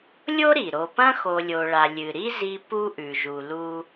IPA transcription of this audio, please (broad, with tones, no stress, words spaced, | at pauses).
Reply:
lʲo˥ɾi˩ ɾo˨pɐ̃˥xo˨ lʲo˨ɭa˨ lʲɨ˩ɾi˥ zi˦pu˥ʔʉ˩ ʒu˨lu˦